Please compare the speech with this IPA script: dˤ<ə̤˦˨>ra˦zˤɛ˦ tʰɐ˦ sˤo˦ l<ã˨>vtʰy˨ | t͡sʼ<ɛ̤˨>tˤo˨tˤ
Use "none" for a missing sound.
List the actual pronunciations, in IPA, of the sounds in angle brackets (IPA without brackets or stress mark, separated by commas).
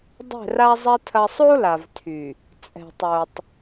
ɛ̤˦˨, a˨, ɛ̤˨